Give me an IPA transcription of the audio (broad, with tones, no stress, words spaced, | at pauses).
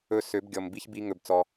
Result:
ɵ˧ sø˨˦bɡʲɔ˨m bi˦çbi˦ŋɵ˧bt͡sɔ˧